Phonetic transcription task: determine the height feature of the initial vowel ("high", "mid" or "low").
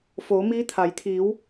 mid